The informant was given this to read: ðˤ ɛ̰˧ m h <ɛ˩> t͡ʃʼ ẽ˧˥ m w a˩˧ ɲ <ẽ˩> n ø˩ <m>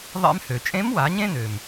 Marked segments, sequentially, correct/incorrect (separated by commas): incorrect, incorrect, correct